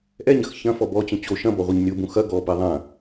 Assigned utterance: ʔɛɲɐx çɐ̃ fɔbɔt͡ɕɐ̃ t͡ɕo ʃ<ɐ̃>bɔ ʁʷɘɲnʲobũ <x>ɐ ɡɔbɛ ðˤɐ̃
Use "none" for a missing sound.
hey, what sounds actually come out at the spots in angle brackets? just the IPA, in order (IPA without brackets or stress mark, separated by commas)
ɐ̃, x